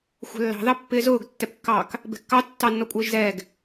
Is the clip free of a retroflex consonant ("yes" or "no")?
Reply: yes